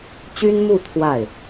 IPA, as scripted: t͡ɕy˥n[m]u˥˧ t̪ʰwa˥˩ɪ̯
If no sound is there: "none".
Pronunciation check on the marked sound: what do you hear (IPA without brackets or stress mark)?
m